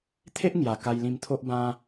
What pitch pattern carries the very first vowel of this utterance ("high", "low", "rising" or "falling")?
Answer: high